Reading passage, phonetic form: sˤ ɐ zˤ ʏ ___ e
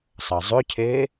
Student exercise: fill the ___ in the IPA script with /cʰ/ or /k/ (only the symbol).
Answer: cʰ